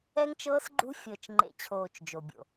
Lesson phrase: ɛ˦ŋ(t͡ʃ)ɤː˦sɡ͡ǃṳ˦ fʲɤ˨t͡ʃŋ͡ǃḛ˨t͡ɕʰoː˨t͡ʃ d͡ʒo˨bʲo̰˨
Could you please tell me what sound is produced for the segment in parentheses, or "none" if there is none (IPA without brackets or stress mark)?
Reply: t͡ʃ